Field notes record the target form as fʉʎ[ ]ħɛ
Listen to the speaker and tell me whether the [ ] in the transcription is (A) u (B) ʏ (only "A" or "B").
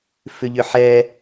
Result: B